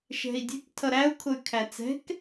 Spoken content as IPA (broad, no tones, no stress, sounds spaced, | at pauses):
ʃ ɛ̤ i̯ dʲ ɛ̤ k tʰ ʌ ɾ æ u̯ kʰ ʊ y̯ kʰ æ t͡s ɛ̤ k